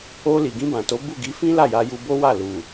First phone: o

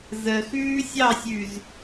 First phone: z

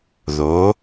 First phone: ð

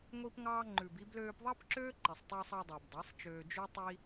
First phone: ŋʷ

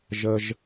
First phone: ʒ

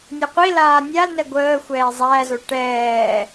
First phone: nʲ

